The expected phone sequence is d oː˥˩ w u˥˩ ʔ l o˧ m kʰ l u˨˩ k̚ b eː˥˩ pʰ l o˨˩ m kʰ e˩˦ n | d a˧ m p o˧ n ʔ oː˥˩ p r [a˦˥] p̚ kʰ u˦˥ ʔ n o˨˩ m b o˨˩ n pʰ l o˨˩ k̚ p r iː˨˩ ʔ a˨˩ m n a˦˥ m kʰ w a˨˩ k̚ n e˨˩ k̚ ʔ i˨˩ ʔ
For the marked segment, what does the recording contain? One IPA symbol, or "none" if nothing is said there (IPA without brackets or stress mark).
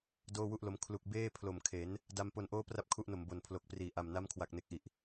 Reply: a˥˩